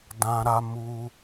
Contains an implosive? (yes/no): no